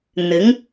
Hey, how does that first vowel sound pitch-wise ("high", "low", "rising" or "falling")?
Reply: rising